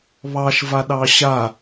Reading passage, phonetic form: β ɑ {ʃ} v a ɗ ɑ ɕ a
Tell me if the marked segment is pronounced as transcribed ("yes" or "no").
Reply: yes